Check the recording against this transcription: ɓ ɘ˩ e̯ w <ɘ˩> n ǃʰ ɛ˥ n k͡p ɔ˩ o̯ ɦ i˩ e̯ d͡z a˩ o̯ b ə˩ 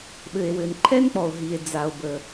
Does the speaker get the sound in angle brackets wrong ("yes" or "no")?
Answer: no